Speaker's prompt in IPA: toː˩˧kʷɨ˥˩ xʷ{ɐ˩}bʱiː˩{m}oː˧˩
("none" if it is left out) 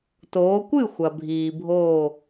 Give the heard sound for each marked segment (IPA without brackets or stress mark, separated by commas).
ɐ˩, bʱ